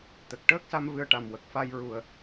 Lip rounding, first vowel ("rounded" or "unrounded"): unrounded